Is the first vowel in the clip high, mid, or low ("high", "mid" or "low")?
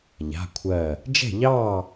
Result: low